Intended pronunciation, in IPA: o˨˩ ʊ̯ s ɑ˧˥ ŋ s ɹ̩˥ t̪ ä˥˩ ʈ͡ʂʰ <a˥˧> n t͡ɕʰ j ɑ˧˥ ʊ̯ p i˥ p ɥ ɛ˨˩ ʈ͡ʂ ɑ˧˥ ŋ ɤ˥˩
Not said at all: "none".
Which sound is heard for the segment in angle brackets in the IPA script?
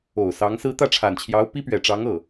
a˨˩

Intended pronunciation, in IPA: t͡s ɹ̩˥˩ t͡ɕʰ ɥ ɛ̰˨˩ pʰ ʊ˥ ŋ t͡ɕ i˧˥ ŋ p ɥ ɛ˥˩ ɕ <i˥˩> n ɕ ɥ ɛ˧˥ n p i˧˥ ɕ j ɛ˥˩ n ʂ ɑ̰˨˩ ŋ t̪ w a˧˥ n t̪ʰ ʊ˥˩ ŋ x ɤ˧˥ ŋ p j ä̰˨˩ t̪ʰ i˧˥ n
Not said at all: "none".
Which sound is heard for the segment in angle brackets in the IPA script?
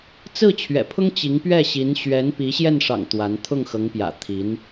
i˧˥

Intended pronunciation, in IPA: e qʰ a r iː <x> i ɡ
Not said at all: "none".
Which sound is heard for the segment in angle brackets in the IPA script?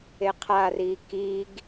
k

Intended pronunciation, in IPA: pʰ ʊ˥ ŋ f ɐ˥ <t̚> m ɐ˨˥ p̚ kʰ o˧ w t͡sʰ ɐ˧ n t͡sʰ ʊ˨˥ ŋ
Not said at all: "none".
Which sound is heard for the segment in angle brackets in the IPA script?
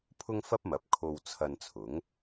p̚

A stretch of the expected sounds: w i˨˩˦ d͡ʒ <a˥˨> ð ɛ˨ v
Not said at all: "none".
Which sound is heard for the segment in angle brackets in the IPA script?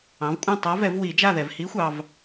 a˥˨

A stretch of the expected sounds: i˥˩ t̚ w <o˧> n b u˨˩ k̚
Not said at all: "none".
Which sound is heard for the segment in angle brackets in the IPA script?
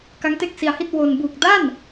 o˧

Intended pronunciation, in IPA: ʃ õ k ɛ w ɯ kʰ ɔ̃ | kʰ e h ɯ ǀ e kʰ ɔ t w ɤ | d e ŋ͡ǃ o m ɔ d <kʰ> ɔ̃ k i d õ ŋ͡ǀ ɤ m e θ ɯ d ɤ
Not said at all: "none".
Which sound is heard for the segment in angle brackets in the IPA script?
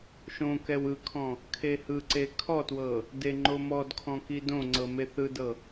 kʰ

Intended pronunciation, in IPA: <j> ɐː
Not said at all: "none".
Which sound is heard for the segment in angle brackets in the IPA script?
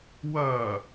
w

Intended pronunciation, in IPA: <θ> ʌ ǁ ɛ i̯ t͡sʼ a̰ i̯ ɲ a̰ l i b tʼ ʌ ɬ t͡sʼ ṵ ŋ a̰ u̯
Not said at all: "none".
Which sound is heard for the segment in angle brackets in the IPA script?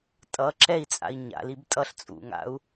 tʼ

